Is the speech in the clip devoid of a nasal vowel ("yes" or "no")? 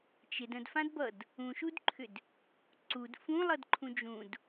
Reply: no